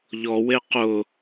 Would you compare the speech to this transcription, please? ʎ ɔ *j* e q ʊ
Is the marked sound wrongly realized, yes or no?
yes